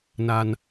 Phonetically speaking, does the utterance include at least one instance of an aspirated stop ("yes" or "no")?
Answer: no